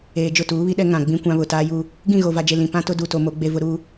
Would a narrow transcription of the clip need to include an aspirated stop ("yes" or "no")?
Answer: no